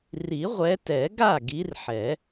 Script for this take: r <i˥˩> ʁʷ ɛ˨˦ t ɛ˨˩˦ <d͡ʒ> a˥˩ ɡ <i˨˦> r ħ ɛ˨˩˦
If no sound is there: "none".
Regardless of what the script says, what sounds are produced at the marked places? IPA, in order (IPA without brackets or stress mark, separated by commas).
i˨˩˦, ɡ, i˨˦